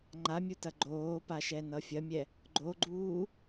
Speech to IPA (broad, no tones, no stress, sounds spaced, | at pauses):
ŋ͡ǃ a mʲ u t ɐ ɡ͡ǃ oː p a ʃ ɛ n ʌ fʲ ɐ mʲ ɛ | ɡ͡ǃ o ɡ͡ǃ uː